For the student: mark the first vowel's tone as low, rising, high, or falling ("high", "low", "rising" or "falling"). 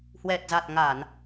low